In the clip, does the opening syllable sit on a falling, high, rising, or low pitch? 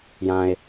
low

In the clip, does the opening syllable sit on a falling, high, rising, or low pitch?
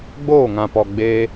falling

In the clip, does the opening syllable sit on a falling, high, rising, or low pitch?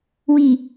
low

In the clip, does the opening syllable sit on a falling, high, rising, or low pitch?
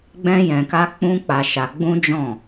high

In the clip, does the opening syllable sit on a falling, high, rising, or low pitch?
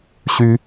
high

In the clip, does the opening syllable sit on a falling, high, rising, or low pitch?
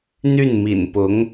falling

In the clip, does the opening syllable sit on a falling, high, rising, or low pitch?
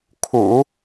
low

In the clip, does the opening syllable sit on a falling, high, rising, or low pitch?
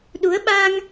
rising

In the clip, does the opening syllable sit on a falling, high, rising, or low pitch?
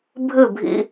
falling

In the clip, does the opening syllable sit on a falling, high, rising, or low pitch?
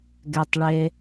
low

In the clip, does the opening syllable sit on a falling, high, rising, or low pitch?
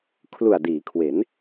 low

